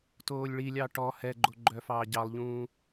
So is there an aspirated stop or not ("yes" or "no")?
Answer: no